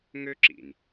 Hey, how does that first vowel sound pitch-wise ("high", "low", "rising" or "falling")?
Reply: high